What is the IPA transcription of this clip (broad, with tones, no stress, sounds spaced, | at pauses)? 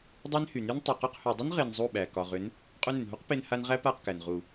dˤ æ˦ n h y˨ n y˦ n tˤ ʏ˨ q ʏ˧ q h y˨ dˤ ʏ˦ n ʁ e˧ n zˤ u˦˨ ɓ æ˨ k ɒ˨ ʁ ʏ˨˦ n | qʼ u˧ n ʏ˨ n ɦ u˦ q p e˦ n h a˦ n ʁ æ˦ p a˦˨ q k æ˨ n ʁ u˨